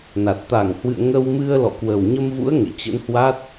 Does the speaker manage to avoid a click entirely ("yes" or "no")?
yes